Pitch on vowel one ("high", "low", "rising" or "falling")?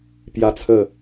high